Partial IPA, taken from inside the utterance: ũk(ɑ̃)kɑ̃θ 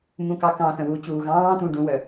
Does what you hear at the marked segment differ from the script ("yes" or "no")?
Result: yes